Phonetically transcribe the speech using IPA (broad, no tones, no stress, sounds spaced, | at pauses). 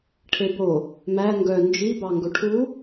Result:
ʈʰ e b o | m æ ŋ ɡ œ n d͡ʒ i b ɑ ŋ ɡ ɵ ʈʰ u